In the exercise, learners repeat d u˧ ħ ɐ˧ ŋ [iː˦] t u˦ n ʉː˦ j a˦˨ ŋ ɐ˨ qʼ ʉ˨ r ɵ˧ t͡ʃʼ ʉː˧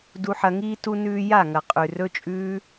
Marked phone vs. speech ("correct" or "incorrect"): correct